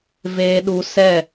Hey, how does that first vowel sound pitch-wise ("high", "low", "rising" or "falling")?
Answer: low